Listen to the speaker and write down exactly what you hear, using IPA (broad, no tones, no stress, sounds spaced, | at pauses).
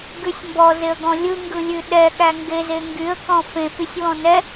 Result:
ɡ ʉ sʲ m b ɔ z e ə̯ ɡ ɔ̃ lʲ ɯ ŋ ɡ ɯ lʲ ʉ ɗ ɛ ɠ æ ŋ ɡ e z e ŋ ɡ y ə̯ k ɔ̃ f ẽ f y sʲ w ɔ̃ n ɛ